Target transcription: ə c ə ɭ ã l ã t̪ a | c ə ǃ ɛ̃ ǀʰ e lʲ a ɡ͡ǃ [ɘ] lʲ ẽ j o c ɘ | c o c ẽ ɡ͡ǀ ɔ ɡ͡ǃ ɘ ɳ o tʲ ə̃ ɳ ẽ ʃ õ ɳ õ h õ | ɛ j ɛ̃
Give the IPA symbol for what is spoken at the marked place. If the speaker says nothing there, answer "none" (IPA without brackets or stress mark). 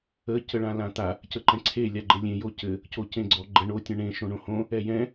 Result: ɘ